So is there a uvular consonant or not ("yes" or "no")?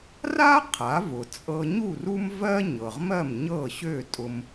yes